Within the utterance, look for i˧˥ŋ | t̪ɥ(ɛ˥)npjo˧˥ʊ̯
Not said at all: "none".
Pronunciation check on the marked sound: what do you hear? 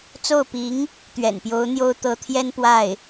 ɛ̰˨˩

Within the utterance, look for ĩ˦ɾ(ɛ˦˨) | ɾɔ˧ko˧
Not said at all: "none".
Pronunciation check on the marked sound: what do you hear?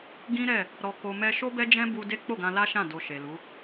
ɛ˦˨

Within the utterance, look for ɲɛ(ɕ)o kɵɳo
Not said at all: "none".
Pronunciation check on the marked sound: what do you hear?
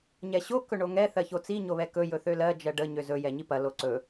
ɕ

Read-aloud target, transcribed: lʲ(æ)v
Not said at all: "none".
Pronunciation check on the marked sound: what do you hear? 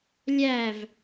æ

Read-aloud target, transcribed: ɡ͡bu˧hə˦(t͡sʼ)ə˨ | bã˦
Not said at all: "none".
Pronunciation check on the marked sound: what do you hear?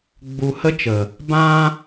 t͡ʃ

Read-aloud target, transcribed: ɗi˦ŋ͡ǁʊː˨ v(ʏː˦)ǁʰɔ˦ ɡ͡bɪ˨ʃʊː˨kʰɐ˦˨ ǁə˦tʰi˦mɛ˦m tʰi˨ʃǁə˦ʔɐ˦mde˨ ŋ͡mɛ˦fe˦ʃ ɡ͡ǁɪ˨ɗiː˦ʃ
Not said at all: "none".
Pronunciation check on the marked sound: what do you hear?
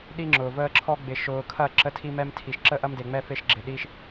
əː˦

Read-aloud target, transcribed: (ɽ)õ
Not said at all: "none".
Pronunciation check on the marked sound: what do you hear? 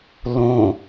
l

